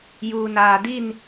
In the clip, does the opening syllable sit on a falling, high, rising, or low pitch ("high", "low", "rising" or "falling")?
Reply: low